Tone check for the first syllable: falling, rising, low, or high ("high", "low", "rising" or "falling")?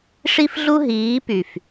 high